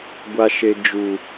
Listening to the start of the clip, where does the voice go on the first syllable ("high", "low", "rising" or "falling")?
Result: high